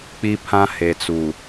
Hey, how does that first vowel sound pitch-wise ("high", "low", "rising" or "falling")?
high